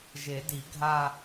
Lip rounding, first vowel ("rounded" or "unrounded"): unrounded